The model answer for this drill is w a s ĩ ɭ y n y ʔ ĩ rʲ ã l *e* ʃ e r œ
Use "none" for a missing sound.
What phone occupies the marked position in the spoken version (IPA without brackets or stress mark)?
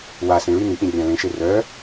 ẽ